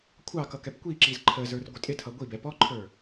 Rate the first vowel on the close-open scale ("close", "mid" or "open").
open